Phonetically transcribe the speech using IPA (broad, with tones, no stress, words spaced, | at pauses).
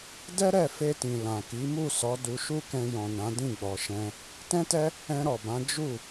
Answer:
dɛ˦ɾɛ˦˨ fe˧tĩ˨ lã˨ki˨˦ mu˦˨sɔ˨˦ du˧ʃu˦kɛ̃˧ jɔ̃˨nã˨˦ dĩ˦˨ɡ͡bɔ˨ʃɛ̃˧ | tɛ̃˦tɛ˦ | ɛ̃˧ɾɔ˨bã˨˦ d͡ʒu˦˨